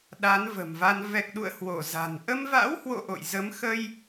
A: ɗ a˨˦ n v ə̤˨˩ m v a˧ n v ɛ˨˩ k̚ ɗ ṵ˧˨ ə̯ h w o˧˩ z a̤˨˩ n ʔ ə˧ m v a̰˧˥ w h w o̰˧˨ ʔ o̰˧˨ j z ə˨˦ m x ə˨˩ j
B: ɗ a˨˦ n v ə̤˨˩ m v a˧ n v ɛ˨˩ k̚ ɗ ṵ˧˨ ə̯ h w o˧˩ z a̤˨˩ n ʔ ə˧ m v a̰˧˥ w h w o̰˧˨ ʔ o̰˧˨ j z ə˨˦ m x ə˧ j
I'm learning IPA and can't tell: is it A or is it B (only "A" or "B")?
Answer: B